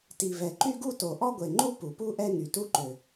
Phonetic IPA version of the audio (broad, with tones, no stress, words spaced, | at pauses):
ti˩vɛ˩ ǃy˥ɡu˥to˩ ʔɔ˥ɡʷe˩ŋ͡ǃu˥ pu˩pu˥ʔɛ˥ ŋy˩tu˥ ǃø˩